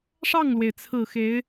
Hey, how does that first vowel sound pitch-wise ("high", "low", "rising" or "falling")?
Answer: falling